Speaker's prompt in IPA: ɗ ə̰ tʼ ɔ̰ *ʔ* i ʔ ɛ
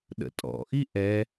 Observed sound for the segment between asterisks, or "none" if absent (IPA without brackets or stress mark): ʔ